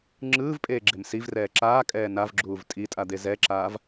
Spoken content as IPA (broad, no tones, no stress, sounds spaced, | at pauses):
ŋ͡ǁ ɯː v pʼ eː ɡ͡ǁ e m s i v r ɛː ǁ aː kʼ ɛː n a v ɡ͡ǁ uː v tʼ i tʼ a d̪ e z ɛ ǁ aː v